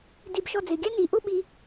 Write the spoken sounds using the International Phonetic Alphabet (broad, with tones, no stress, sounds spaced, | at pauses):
d i˧ b ʃ ɔ˧ d͡z ɪ˩˧ ɡʲ æ˥ n i˩˧ ʔ ʊ˥˧ ɓ i˧